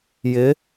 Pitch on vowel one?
rising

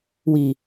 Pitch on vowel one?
low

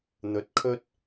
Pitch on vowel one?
low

